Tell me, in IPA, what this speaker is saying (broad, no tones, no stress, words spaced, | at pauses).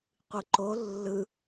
qʷɯǃo lːɯ